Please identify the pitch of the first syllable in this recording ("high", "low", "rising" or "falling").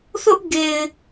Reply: high